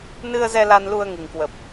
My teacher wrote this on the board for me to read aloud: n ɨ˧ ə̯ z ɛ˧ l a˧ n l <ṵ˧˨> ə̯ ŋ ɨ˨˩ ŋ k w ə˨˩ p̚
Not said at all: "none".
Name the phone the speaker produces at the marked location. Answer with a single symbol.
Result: u˧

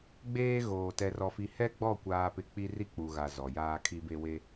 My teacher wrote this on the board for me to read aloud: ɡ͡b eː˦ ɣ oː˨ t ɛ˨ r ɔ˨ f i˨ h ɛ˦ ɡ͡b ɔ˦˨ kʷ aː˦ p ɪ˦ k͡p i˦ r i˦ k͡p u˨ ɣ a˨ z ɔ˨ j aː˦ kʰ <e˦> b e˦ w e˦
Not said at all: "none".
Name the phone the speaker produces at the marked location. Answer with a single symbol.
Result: i˦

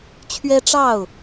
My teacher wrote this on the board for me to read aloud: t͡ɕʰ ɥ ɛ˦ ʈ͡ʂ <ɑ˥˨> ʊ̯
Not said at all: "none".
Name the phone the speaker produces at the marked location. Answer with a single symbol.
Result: ɑ˥˨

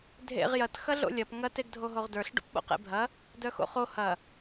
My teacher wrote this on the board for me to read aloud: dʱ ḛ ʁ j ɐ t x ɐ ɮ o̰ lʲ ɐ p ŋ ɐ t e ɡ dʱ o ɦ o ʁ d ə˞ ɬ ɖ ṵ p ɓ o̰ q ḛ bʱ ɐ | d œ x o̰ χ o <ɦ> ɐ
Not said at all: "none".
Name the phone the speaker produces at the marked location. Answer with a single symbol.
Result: h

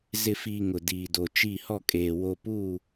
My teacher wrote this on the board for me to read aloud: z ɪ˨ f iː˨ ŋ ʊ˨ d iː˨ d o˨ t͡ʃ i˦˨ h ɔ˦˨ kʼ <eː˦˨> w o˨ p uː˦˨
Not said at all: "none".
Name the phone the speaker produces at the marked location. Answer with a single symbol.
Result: eː˨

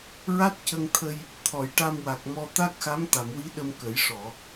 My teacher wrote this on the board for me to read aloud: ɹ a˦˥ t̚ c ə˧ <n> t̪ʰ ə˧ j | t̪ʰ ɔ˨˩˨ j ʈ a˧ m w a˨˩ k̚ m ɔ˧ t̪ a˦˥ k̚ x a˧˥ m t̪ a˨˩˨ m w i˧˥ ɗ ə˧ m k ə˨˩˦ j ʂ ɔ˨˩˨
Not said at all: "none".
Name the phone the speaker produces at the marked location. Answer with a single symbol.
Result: ŋ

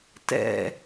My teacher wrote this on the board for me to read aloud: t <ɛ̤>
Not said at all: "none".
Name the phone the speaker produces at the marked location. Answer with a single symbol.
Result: ɛ̰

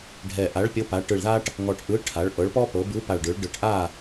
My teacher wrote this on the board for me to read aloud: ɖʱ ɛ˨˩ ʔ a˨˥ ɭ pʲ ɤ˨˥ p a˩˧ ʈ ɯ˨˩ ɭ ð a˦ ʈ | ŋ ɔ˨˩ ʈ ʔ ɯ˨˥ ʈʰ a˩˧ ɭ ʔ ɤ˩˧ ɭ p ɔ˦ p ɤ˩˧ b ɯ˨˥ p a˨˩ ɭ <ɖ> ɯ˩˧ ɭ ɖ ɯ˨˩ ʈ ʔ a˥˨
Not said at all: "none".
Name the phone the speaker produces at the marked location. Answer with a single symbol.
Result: ɖ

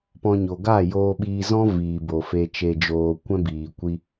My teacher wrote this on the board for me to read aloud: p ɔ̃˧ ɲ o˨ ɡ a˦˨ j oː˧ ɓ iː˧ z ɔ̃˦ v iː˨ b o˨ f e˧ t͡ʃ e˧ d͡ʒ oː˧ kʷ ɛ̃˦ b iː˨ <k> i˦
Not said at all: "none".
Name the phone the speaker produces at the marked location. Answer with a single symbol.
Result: kʷ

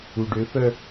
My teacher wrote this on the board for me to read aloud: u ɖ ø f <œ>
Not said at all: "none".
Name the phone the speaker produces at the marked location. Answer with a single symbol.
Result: œ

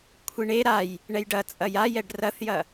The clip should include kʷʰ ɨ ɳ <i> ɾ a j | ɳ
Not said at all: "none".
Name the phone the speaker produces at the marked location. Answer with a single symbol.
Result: e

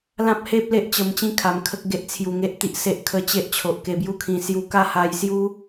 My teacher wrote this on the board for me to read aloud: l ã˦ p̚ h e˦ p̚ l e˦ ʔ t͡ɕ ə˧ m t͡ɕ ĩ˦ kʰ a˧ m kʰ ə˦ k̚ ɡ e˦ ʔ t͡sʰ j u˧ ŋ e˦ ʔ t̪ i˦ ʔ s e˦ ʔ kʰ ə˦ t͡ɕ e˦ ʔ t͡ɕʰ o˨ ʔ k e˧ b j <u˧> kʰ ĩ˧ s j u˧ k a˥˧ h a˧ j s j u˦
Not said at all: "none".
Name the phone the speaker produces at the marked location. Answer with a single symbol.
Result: u˦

